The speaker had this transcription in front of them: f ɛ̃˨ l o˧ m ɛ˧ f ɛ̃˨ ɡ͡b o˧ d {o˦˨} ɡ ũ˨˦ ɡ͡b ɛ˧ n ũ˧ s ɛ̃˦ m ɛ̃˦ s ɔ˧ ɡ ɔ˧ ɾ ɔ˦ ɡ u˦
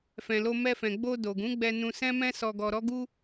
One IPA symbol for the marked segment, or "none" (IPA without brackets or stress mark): o˨